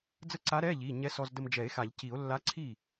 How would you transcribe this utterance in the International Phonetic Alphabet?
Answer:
d͡z ə˥˩ ǀ a˧˥ ɾ ɛ˧˥˧ ʎ i˩˧˩ ɲ ɛ˧˥ s ɔ˧ z d ə˧ m d͡ʒ ɛ˨˩˦ e̯ x a˨˩˦ ʎ c i˨˩˦ o̯ lː a˧˥ ǀʰ i˥˩

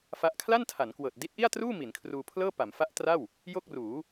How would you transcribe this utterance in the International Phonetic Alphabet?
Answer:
f a˦˥ ʔ kʰ l a˥˩ n tʰ a˩˦ n k w ɤː˨˩ t̚ d i˦˥ t̚ ʔ i˥˩ a̯ t r uː˥˩ m i˩˦ n kʰ r uː˧ pʰ l ɤː˥˩ p a˩˦ m f a˦˥ ʔ t r a˥˩ w | j o˥˩ k̚ r uː˩˦

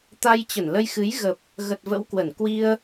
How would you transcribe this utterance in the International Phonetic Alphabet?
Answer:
t̪ a˧ j t͡ɕ ə˧˩ n l ə˧ j x ɨ˨˦ j ɣ ə˨˩ p̚ | ɣ ə˨˩ t̚ v ə̰˧˥ w k w ə˧˩ n k w i˧ ə̯

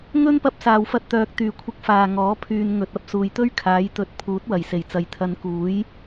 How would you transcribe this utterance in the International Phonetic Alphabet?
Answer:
ŋ ɵ˥ n p ɐ˧ p̚ s aː˨ w f ɐ˧ t̚ t̪ œː˨ k̚ t̪ yː˨˩ kʷʰ ɪ˨˥ k̚ f aː˨ ŋ ɔː˨˥ pʰ yː˨ n ŋ ɵ˨ t̚ ɐ˧ p̚ s uː˨ j t̪ ɵ˥ ɥ kʰ aː˨˥ j t̪ ɵ˨˥ t̚ pʰ uː˨˥ t̚ w ɐ˨˩ j s e˨˩ j t͡s ɐ˨ j t̪ʰ ɐ˨˧ n k uː˨˥ j

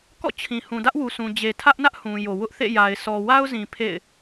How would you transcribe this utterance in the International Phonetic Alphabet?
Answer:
k ɔ̰˦˨ t͡ɕʰ ĩ˨ h ũ˨ d ä˦ ʔ w u˨ s ũ˨ d͡ʑ e˨ tʰ ä˦ ʔ n ä˦ ʔ h ũ˨ j o˨ w ʊ˦ ʔ θ ḛ˦˨ j a˨ ɪ̯ sʰ ɔ˨ w a˦ ʊ̯ z ĩ˨ pʰ ḛ˦˨ ɪ̯

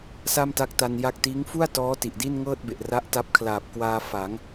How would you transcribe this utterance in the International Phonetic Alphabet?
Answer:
s a˥˩ m t a˦˥ k̚ t a˧ n j a˥˩ k̚ t iː˦˥ ŋ f u˥˩ a̯ t ɔː˦˥ t i˨˩ ʔ d i˥˩ n ŋ ɤː˥˩ t̚ b e˨˩ ʔ r a˦˥ ʔ t a˦˥ p̚ kʰ l aː˨˩ p̚ k w aː˧ f a˩˦ ŋ

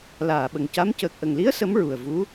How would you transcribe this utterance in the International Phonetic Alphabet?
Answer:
l aː˨˩˨ ɓ ə˨˩ ŋ c a˧˥ m c əː˨˩ k̚ ʔ ə˨˩ ŋ l i˧˥ ə̯ s ə˧˥ m ɹ u˨˩ ə̯ v u˧˥

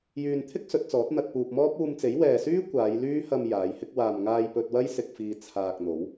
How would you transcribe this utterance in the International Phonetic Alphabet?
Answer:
j yː˨ n t̪ʰ ɪ˥ k̚ s ɵ˨˥ t̚ t͡s ɔː˨˥ t̚ n̪ ɐ˨ t̚ p uː˨ p̚ m ɔː˥ p̚ uː˧ m t͡s e˨˥ j w ɛː˨ s yː˥ kʷ aː˨˧ j l yː˥ h ɐ˧ m j aː˨˧ j h ɪ˥ k̚ w aː˨ m ŋ aː˧ j p ɵ˧ t̚ w ɐ˥ j s ɪ˧ k̚ f iː˧ t͡sʰ aː˧ k̚ n̪ o˨˥ w

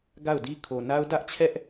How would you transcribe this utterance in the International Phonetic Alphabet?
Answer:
ɡ a˦˨ ʊ̯ d i˦ kʰ o˨ n a˦ ʊ̯ d ä˦ ʔ t͡ɕʰ ɛ˦ ʔ

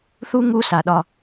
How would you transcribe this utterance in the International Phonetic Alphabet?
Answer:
θ u˦ ŋ u˦ s a˨ ɗ ɒ˦

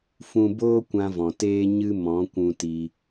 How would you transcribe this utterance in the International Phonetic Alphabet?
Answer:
f ũ˧ b oː˦ kʷ ã˧ v ɔ̃˨ t eː˦ ɲ ɨ˦ m ɔ̃˨˦ kʷ ũ˧ t iː˧

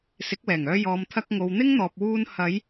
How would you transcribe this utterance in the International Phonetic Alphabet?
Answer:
s ɪ˨˥ k̚ w ɛː˨˩ ŋ œː˧ j ɔː˨ m t̪ʰ ɐ˧ k̚ ŋ o˨ w n̪ ɪ˥ ŋ n̪ ɔː˨ p̚ w uː˧ n h ɐ˨˧ j

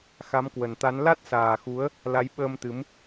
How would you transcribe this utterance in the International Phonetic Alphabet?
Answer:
x a˨˦ m k w ə˨˩ n t̪ a˨˦ n l a˦˥ t̚ s aː˨˩ x u˨˦ ə̯ | l a˨˦ j ɓ əː˧ m t̪ ɨ˨˦ m

